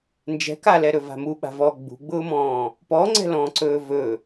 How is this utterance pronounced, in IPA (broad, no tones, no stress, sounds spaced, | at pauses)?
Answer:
n d͡ʒ ɛ̤ k a l ɛ ɾ ɵ v a̤ m u ɓ a̤ v ɔ ɡ͡b ṳ ɡ͡b ʊː m ɔ̃ː | p ɔ ŋ͡ǀ ɛ̤ l ɔ̃ː ǀ ɵː v ɵ